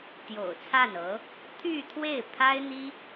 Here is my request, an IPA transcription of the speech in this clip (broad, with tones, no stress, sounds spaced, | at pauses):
t̪ j o̰˨˩ ʊ̯ t͡sʰ a˥˩ n ɤ˧˥ | t̪ʰ y˥˧ t̪ʰ w e˥˩ ɪ̯ pʰ a˥ ɪ̯ n̪ i˥